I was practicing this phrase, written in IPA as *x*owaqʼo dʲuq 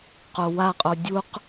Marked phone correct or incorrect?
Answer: incorrect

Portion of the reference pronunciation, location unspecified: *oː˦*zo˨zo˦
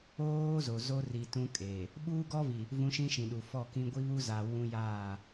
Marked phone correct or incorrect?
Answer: correct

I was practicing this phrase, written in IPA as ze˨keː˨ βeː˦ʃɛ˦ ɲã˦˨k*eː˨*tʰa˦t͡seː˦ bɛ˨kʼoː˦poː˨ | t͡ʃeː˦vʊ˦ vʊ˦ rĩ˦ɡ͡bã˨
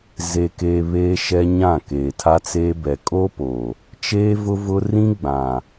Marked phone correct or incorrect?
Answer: correct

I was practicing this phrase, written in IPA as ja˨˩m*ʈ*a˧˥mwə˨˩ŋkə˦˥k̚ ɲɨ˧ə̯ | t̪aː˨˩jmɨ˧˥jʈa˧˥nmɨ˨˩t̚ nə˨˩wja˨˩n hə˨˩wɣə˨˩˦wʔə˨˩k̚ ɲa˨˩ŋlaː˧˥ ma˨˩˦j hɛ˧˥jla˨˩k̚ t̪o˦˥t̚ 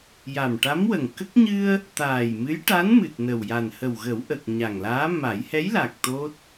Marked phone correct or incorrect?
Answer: correct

